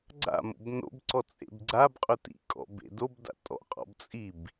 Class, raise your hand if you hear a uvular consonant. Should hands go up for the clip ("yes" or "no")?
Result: yes